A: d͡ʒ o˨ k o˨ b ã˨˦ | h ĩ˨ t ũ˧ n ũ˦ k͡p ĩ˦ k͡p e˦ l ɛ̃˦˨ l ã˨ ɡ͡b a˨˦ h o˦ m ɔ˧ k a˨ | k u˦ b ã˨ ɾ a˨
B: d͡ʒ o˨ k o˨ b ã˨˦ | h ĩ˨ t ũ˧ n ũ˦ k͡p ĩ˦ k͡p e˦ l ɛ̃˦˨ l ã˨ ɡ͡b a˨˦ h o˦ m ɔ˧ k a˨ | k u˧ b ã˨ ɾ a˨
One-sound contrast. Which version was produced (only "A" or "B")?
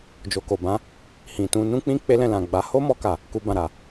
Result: B